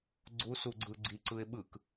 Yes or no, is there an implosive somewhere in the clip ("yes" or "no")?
yes